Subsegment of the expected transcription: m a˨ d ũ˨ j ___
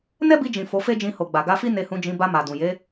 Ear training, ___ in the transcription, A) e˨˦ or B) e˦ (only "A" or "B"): A